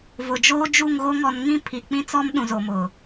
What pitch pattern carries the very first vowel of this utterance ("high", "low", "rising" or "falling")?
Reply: low